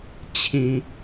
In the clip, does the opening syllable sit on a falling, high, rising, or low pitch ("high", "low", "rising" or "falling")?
low